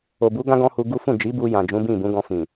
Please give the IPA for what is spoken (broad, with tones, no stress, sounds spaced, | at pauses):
o˨ b u˨˦ ɡ ã˦ ɡ ɔ̃˦ h u˧ ɡ u˦ f ũ˦˨ d͡ʒ i˨˦ b u˧ j ã˨ d͡ʒ ũ˨˦ b ĩ˦˨ b ũ˨˦ ɡ ɔ̃˧ f ĩ˨